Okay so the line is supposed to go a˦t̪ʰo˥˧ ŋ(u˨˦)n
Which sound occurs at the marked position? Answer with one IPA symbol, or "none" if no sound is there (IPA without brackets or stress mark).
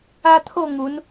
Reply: u˨˦